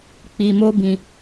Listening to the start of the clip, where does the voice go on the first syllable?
low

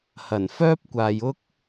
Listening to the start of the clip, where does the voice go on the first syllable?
low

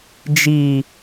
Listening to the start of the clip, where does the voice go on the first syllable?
low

